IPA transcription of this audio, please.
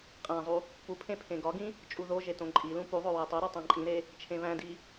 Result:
qʼ æ̃ zˤ u | p u pʰ ẽ pʰ ẽ ɡ ɒ ɡ ĩ | t͡ʃʼ u ð o ʒ e t õ ǃʼ i l ũ p u ðˤ o w æ tˤ o ɾ ɒ tˤ æ̃ ǃʼ ĩ ɾ e | t͡ʃʰ ẽ β æ̃ d i

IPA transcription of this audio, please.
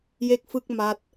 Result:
j e˥˩ k̚ f ɯ˥˩ k̚ m a˦˥ t̚

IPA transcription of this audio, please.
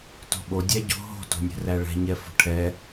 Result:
t o̤ ɓ o dʲ æ ɟ o̤ ɦ o̤ t o̤ nʲ ɛ̤ r æ ɭ ɛ̤ ɲ ɛ f o̤ ʈʰ ɛ

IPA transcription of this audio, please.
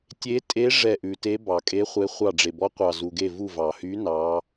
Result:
tʲ e˧˥ tʼ e˧˥ ʐ ɛ˦˨ ʔ ʉ˨ t e˧˥ b ɑ˨ kʼ e˧˥ χʷ e˧˥ χʷ ɑ˦˨ ɖ͡ʐ e˨ b ɔ˧˥ qʷ ɑ˨ z u˨ ɡ e˦˨ v u˦˨ v ɑ˨ h y˧˥ n ɑ˧˥

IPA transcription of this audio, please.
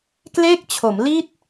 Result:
k l e˥˩ k̚ t͡ɕʰ o˩˦ m l i˥˩ t̚

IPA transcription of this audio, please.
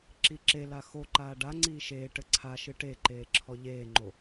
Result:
ǁ i ǁ e l a x o ǃ aː ɖ a ŋ͡ǀ iː ʃ eː ʈ ɘ ǀʰ a ʃ ɨ ʈ e ǃ eː ǁʰ ɔ ʎ eː ŋ͡ǃ o

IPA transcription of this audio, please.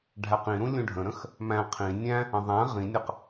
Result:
ɖʱ æ q ĩ ɾ ũ lʲ ũ ɖʱ ə̃ ɾ ə̃ x | m æ̃ qʰ ĩ nʲ æ̃ | ə̃ ðˤ æ̃ ʁ ĩ nʲ ə q

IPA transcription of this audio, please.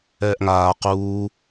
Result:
ɛː ʔ ŋ aː q uː

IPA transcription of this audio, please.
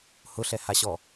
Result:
h ʊ ɬ ɛ h a ɕ ɔ

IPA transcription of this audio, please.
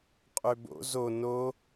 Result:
qʼ ø b o̰ z o n o

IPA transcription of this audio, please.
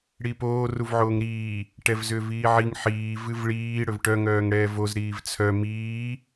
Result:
ɽ i p oː r u v ʕ oː ŋ ɾ iː | ʈ ɛ v z ʏː v iː ʕ i ŋ ħ iː v ɨ v ɭ iː ɽ ɵ v ʈ œ ŋ œː ŋ ɽ ɛː v o z ɾ iː v t͡sʰ œ m iː

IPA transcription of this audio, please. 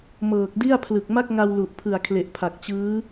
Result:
m ɤː˨˩ k̚ d i˥˩ a̯ pʰ l ɯ˨˩ k̚ m a˥˩ k̚ ŋ a˧ w l u˨˩ ʔ pʰ ɯ˨˩ a̯ kʰ l e˨˩ ʔ pʰ a˨˩ k̚ t͡ɕ ɯː˦˥

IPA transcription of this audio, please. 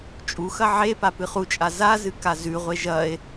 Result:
t͡ʃʼ u x ɐ ʕ e p a p ɨ χ u t͡ʃʼ a z a z ɨ k a z ʉ ʁʷ e ʒ ɐ e̯

